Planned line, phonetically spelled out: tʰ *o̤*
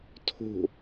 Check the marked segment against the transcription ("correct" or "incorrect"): correct